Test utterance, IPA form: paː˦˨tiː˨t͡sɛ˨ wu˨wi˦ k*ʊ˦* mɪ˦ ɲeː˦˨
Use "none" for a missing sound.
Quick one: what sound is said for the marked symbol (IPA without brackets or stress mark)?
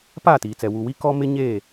ɔ˦